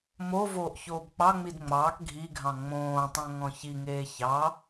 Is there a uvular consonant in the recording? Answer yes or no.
no